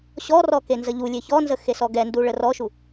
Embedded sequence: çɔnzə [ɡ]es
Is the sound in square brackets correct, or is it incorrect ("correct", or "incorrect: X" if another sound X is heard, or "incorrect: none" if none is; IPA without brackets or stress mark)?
incorrect: x